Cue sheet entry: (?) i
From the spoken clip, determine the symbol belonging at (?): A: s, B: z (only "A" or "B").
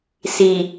A